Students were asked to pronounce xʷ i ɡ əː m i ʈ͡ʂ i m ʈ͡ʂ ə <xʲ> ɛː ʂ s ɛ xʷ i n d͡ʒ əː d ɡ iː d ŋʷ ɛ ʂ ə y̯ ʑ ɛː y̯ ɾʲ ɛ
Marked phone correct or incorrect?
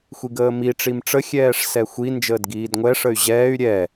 correct